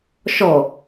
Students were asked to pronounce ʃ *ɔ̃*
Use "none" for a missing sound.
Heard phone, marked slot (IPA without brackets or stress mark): ɔ